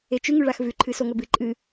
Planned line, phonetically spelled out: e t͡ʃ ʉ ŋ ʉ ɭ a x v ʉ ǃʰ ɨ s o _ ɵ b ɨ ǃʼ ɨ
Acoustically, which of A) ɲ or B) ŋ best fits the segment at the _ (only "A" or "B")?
B